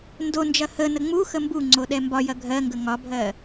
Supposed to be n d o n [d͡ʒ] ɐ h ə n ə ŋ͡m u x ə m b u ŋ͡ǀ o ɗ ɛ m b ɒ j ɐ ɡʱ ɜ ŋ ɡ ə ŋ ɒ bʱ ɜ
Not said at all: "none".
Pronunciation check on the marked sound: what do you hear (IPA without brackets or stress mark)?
d͡ʒ